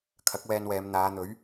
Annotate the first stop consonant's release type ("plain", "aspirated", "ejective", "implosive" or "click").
aspirated